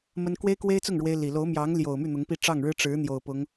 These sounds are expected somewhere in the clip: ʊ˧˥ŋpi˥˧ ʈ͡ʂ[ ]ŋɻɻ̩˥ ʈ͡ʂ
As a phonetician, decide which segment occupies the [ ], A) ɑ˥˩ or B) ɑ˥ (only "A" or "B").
A